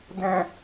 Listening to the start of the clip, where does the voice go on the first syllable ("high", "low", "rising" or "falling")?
low